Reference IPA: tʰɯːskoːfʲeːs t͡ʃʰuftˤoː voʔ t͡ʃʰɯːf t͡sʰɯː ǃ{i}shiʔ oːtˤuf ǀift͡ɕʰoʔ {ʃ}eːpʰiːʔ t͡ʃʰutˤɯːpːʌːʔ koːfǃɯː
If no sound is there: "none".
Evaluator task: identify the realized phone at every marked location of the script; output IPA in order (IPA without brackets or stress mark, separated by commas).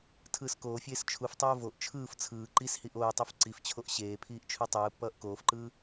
i, ɕ